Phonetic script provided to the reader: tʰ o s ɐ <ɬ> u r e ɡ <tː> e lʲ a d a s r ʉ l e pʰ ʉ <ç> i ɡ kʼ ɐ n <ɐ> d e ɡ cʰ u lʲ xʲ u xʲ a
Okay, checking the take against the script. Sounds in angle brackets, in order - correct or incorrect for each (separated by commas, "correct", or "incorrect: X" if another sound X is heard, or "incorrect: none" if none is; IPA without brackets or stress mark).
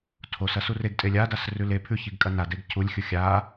incorrect: s, incorrect: tʼ, correct, incorrect: a